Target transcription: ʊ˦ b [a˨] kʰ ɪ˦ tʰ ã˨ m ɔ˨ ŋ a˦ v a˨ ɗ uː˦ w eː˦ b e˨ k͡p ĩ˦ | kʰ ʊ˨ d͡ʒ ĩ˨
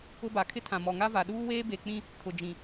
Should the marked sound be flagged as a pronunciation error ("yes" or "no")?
no